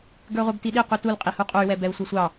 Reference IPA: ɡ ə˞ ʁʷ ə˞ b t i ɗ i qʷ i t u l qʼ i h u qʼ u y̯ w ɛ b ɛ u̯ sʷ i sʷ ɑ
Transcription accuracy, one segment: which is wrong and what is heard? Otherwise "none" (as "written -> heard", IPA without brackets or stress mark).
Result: none